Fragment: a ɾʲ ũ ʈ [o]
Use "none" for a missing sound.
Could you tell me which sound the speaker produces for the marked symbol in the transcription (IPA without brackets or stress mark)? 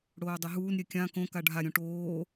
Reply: oː